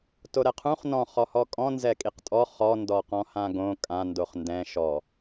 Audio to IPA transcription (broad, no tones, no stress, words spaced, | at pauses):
toɾɛqʰũχ nɔ̃ χɔhɔkʼɔ̃ nzɛkʼiqtʼɔ χɔ ndɔqɔ̃hãɡõ kʼã ndoχndɛ̃ ʃɔ